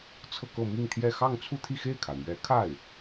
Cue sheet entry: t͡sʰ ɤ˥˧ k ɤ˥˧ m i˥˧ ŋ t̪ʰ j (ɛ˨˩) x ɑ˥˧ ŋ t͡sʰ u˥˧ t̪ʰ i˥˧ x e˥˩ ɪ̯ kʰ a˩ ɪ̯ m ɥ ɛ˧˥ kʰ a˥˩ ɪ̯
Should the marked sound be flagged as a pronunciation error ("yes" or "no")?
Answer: yes